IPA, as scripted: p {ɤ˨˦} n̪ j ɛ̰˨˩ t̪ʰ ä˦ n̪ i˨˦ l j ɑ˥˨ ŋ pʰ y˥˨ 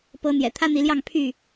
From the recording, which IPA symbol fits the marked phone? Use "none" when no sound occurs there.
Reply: ɤ˨˦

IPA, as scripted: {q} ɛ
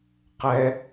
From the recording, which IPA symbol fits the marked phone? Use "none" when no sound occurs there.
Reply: q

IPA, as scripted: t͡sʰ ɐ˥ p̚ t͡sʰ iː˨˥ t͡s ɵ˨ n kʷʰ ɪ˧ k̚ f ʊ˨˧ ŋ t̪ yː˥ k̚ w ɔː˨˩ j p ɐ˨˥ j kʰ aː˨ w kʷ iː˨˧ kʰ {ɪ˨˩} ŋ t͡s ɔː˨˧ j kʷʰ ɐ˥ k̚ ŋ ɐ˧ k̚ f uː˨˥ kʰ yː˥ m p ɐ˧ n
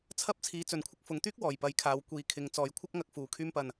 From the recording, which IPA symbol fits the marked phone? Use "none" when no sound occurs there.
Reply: ɪ˨˧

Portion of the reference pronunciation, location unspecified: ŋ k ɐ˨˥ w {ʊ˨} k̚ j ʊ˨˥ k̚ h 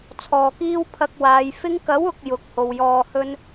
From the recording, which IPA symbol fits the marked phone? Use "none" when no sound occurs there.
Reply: ʊ˨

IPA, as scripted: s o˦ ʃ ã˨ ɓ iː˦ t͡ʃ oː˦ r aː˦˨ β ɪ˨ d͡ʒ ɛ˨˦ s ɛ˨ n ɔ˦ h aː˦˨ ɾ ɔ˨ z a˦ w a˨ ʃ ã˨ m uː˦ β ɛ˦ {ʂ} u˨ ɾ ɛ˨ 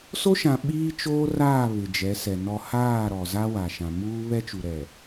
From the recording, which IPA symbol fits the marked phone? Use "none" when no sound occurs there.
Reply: t͡ʃ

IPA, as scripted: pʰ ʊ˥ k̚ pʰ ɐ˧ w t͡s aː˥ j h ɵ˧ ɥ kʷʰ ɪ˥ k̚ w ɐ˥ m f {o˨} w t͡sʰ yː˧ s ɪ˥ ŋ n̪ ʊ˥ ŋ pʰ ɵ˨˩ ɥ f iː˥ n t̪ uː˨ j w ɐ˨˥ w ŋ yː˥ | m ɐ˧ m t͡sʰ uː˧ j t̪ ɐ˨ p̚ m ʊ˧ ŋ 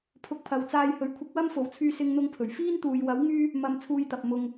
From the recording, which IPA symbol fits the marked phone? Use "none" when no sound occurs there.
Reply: o˨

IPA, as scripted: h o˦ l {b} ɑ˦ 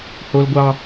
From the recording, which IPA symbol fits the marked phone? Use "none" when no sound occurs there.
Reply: ɡʷ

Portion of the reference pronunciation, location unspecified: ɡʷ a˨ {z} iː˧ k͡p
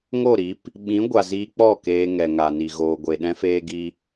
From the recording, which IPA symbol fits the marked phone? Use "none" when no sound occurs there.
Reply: z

